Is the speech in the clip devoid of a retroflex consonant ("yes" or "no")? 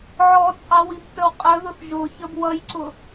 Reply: yes